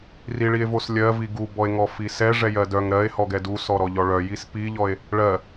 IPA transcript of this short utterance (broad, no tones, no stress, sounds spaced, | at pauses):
r i ɭ i e̯ v o s lʲ ɜ v i ɡ u b ɔ e̯ ŋ ɔ f i s ɛ ʐ ɛ j ɜ d œ ŋ ɾ ɜ e̯ h ɔ ɡ ɛ d u s ɔ ɾ ɔ ʎ ɔ ɭ œ j i s p i ʎ ɔ e̯ | ɭ ɜ